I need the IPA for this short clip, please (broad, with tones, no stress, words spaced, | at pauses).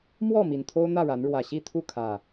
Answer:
mwɔ˥˨ mi˨˩nt̪ʰo˦ʊ̯n̪ä˥˨ɻa˨˦n ɻwä˨˩ɕi˥˨t̪ʰu˥˨kʰä˨˩